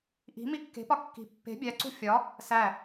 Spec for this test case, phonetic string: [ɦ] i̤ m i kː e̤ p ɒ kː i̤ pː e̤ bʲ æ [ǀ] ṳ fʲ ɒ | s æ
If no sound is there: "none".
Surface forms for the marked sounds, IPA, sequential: ʔ, ǀ

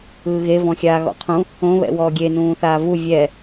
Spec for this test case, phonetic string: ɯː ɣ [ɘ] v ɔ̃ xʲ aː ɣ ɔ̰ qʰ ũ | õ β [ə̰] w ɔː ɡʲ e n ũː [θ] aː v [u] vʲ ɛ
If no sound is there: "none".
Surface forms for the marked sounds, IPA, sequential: e, ɛ̰, θ, u

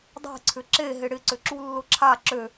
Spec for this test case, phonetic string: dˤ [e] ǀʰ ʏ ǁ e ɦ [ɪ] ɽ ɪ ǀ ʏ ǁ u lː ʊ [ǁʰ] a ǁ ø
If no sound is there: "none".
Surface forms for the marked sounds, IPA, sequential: e̤, ɪ, ǁʰ

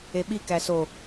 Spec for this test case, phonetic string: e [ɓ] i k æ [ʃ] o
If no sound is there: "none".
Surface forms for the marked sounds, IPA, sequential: ɓ, s

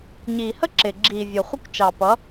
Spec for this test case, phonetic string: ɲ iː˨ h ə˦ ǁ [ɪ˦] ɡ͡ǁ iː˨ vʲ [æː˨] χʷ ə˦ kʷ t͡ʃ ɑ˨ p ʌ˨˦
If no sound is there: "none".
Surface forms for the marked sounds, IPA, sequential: ɪ˨, əː˨

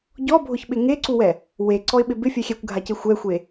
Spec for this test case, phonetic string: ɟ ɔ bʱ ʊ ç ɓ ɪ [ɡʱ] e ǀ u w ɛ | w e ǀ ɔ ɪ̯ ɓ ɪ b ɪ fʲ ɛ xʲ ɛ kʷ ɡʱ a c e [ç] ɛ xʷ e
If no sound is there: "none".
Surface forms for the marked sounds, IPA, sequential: ŋ, xʷ

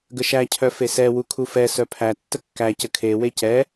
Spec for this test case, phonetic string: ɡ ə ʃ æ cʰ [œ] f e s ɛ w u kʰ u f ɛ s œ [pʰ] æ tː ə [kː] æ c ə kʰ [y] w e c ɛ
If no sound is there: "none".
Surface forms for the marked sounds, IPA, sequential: œ, pʰ, kː, e

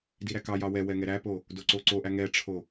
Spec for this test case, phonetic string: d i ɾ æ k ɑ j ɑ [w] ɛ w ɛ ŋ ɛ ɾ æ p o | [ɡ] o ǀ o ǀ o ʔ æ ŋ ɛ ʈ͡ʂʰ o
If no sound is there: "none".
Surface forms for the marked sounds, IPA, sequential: w, d

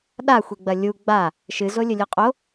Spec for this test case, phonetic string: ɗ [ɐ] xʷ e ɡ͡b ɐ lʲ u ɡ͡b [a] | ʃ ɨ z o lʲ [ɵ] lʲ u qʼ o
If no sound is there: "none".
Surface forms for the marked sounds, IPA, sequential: a, a, ɵ

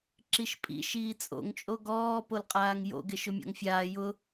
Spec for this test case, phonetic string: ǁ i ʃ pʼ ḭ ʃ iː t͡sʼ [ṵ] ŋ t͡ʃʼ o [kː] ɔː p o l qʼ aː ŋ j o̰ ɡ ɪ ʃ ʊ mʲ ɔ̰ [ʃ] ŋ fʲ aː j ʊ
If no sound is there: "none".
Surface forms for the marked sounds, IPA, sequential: o̰, ɡ, none

